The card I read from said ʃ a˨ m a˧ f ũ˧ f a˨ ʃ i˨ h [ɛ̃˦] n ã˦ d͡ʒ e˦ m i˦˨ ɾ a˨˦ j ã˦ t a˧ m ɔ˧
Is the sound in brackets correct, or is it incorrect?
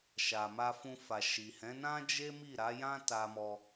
incorrect